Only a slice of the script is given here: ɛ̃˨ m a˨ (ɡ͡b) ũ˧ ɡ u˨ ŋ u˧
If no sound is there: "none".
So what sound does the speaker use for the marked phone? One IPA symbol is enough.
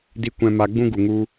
ɡ͡b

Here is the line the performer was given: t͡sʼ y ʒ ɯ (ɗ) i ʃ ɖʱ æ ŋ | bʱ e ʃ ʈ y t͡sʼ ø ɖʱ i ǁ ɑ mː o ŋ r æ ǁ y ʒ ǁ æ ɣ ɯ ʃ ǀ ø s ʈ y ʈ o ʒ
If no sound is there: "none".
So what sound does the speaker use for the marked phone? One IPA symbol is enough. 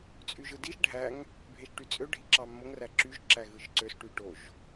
d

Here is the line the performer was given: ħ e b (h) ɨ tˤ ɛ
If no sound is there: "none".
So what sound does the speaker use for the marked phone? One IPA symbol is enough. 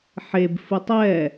f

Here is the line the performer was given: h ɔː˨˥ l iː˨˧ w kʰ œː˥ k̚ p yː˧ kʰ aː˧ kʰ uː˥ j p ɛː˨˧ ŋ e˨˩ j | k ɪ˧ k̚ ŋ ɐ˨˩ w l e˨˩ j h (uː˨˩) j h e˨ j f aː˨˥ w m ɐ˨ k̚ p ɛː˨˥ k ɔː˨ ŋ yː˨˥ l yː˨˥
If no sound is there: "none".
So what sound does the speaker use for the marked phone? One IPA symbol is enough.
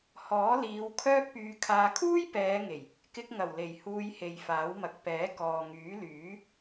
uː˧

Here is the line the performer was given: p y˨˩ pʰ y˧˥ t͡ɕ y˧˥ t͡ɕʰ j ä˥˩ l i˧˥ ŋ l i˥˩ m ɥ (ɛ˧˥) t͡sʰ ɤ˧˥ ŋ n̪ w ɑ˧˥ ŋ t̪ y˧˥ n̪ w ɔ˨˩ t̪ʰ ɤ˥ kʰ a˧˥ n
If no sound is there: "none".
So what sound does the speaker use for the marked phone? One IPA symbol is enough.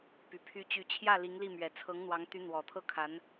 ɛ˨˩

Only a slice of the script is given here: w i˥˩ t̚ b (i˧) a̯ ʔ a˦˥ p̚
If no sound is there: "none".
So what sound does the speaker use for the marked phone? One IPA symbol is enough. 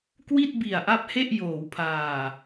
i˨˩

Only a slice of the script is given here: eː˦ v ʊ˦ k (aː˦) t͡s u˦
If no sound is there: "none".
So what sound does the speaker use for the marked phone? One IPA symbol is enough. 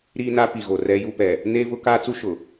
aː˦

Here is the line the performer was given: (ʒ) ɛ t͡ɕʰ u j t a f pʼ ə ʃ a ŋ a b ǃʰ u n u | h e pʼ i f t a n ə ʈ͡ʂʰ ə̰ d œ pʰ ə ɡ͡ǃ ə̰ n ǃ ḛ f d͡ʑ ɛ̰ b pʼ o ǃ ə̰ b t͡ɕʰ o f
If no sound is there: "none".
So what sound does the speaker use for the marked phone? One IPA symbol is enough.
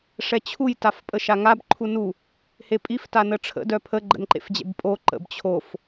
ʂ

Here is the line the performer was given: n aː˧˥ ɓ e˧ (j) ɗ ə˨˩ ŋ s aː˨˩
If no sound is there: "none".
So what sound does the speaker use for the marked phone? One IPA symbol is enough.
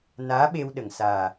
w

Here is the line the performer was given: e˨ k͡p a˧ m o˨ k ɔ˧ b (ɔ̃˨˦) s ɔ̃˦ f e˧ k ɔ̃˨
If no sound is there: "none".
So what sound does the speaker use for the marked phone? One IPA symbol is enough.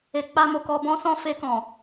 ɔ̃˦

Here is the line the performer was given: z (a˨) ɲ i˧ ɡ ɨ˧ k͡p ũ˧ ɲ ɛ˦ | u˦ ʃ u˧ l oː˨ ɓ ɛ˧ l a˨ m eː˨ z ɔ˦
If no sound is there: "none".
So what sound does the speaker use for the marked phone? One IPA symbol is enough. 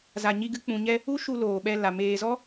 a˨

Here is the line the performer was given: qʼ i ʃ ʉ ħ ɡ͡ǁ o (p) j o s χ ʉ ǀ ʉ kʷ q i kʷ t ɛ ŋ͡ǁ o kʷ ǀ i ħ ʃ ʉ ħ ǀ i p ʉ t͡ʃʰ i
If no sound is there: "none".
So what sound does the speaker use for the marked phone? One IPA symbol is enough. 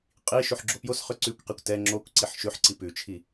p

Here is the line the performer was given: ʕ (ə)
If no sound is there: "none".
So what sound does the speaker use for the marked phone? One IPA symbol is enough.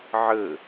ə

